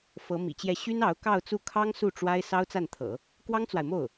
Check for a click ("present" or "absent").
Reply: absent